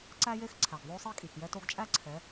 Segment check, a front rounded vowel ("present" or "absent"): absent